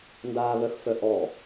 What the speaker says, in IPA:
n d aː β œ x f œ ʔ ɔ

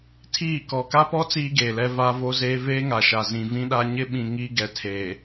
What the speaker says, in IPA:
tʰ iː˦˨ k ɔ˨ k a˦ p ɔ˦ t͡s iː˦ ɡ eː˨ l ɛ˦ v aː˦ v o˦ z eː˦ v eː˦ ŋ a˨ ʃ a˨ z ĩ˨ v ĩ˦ ɗ a˦ ɲ ɪ˦ ɓ ĩ˨ ŋ iː˦ ɡ ɛ˨ tʰ eː˨

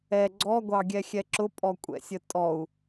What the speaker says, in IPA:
ɛ ɡ͡ǀ ɔ ɡʷ ɑ ɡʲ ɛ xʲ ɛ ǁ ʊ pʼ ɔ kʷʼ ɛ̰ sʲ ə tʼ ɔ u̯

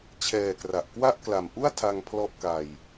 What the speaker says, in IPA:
t͡ɕʰ ɛː˨˩ k r a˨˩ ʔ k w a˥˩ ʔ k l a˨˩ m ʔ u˥˩ a̯ tʰ a˧ ŋ pʰ l ɔ˦˥ ʔ k a˧ j

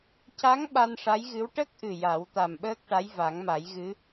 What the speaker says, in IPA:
c a˧˥ ŋ ɓ a˧ n ʂ a˧˥ j ɣ ɨ˧˥ w ʈ ə˦˥ k̚ ʔ ɨ˨˩ j a˨˩˦ w t̪ a˨˩ m ɓ əː˦˥ k̚ ʈ a˧˥ j v a˨˩˦ ŋ m a˨˩˦ j ɣ ɨ˧˥

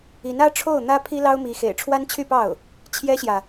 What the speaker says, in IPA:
i˧˥ n ä˥ ʈ͡ʂʰ o˥˩ ʊ̯ n̪ ä˥ pʰ i˥ l ɑ˥ ʊ̯ m i˧˥ x ḛ˨˩ ɪ̯ ʈ͡ʂʰ w a˥ n t͡ɕʰ y˥˧ p ɑ˥˩ ʊ̯ | t͡ɕʰ j ɛ˥ ɕ j ä˨

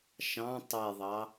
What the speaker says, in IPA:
ʃ ɑ̃ tˤ e ðˤ ɑ

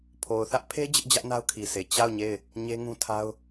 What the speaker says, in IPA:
pʰ o˨ ʊ̯ θ ä˦ ʔ pʰ e˦ d͡ʑ ɪ˦ ʔ d͡ʑ ä˦ ʔ n a˦ ʊ̯ kʰ i˨ sʰ e˨ t͡ɕ a˦˨ ʊ̯ ɲ e˦˨ ɪ̯ | ɲ e˦ ŋ ũ˦ tʰ a˦ ʊ̯

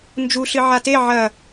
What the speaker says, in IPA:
n d͡ʒ u ɬ ɨ ʕ a t e ʕ ɐ

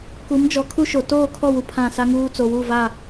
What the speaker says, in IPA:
k u˨˦ m d͡ʒ ɔ˨˦ kʰ u˦ ʃ o˨ t oː˦˨ kʰ ɔ˦˨ w u˨ pʰ ã˦˨ s a˦ ŋ uː˦ t͡s o˨ w u˦˨ v a˦˨

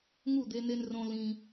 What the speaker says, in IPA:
ŋ u˦˨ d̪ e˧ n e˧ n r õ˧ l ĩ˧

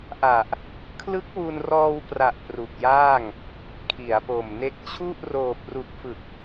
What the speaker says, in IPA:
ʔ a˨˩ ʔ | kʰ l ɯ˦˥ k̚ w u˧ n r ɔː˧ w p r a˨˩ ʔ p r u˨˩ k̚ j aː˥˩ ŋ | kʰ i˩˦ a̯ p o˨˩ m n e˦˥ k̚ t͡ɕʰ u˥˩ ʔ r oː˨˩ p̚ r u˨˩ k̚ f ɯ˨˩ k̚

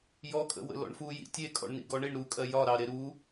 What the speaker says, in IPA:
j ɔ kʼ ə̰ w ə̰ l ɔ̰ ɳ f u j ḭ tʲ e kʼ ɔ̰ ɳ n ḭ ɡ ɔ ɳ i ɳ ɾ u kʼ ɜ j ɒ ɾ ɑ ɾ e ɾ u

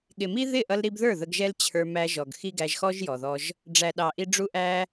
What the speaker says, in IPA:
ɠ ɪ˨ m i˦ ð ɪ˦˨ ʔ ʌ˧ l ɾ i˧ b ð ə˞˦˨ ð ə˧ ɡ ʒ ɛ˦ l t͡ɕʰ ə˞˧ m æ˧ ʒ ɔ˨ ɡ x i˦ ɡ æ˧ ʒ x ɔ˦ ʒ j ɔ˨ ð ɔ˧ ʒ | ɖ͡ʐ æ˨ ɗ ɑ˨ ʔ i˧ ɖ͡ʐ u˧ ʔ æ˧

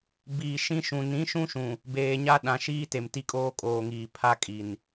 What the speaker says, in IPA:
b iː˨ ʃ ĩ˦ ʃ ũ˨ n ĩ˨˦ ʃ ũ˦ ʃ ũ˨ | b eː˨ ɲ a˦ ɗ ã˨ ʃ iː˦ t e˨ m t i˦ kʼ oː˦ kʼ oː˨ ŋ iː˨ pʰ a˦ kʼ i˨ n

